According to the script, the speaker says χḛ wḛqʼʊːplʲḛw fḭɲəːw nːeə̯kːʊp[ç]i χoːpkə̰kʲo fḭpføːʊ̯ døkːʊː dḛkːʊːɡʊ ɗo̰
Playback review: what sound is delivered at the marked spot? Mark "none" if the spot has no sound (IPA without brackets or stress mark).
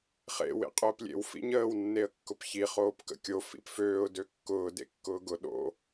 ç